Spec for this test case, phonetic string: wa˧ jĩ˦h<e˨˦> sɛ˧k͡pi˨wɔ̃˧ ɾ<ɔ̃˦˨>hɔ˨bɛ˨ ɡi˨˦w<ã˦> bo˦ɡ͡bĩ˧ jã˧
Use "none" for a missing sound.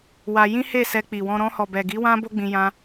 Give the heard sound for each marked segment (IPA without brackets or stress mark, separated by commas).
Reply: e˦˨, ɔ̃˧, ã˦